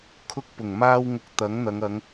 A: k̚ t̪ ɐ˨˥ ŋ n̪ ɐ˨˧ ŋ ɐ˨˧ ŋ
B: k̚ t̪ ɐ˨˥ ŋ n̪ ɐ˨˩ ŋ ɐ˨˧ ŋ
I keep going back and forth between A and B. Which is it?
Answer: A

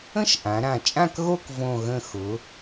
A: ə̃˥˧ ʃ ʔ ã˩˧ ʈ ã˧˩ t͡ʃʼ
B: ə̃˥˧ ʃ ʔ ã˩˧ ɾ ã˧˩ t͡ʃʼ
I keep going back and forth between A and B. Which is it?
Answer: B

